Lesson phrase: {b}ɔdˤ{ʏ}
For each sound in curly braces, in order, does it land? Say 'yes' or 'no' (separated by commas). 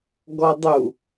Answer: no, no